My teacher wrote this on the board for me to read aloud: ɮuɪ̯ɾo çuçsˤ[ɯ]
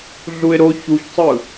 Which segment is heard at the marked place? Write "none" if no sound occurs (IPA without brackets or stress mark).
ɯ